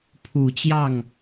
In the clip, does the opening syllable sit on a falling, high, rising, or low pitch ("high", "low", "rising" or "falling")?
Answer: low